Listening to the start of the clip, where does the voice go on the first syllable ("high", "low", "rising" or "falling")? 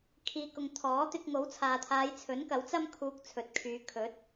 low